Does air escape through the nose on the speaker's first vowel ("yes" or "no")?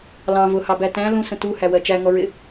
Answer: yes